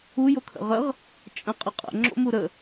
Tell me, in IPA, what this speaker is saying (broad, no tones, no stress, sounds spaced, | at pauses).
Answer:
u j o kʰ ə̰ ʁ ə ʁ | t͡ʃʼ ə̃ qʼ ɘ qʼ ə̰ ŋ͡ǁ o̰ m u ɾ ə